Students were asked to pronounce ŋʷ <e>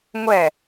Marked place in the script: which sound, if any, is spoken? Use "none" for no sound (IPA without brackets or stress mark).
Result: ɛ